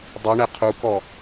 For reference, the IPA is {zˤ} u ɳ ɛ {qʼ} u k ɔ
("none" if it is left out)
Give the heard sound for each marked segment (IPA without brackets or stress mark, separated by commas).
dˤ, qʰ